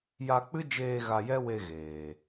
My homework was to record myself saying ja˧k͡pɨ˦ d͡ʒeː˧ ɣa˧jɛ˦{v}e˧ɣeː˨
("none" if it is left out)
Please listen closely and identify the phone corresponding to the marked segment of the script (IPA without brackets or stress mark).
w